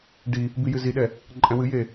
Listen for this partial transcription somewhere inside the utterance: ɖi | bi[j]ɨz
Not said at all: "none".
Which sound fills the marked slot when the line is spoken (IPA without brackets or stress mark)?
j